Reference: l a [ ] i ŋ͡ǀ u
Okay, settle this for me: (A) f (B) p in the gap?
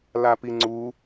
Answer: B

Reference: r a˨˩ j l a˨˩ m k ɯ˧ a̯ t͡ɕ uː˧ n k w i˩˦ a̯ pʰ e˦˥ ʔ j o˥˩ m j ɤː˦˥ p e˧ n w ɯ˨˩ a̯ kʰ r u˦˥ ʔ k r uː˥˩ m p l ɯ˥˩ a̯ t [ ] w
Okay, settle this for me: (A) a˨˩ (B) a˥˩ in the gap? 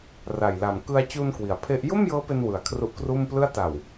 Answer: A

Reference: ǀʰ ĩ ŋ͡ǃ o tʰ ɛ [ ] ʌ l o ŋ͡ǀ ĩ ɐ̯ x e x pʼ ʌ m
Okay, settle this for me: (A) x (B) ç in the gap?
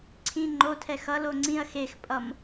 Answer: A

